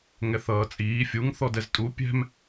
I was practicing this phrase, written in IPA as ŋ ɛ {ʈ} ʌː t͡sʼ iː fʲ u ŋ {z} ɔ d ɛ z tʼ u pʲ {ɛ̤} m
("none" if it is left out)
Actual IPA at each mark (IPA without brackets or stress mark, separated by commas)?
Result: θ, θ, ɛ̤